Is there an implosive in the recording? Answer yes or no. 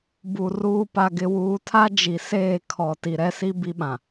yes